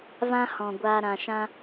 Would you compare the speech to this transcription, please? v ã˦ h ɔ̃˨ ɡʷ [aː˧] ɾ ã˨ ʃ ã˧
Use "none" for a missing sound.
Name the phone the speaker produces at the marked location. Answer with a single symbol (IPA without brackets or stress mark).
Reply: aː˧